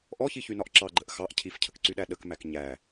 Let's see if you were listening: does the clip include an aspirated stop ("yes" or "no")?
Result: yes